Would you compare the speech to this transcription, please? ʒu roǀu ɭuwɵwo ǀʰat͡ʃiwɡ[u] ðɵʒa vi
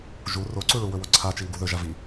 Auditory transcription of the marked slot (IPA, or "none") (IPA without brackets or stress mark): u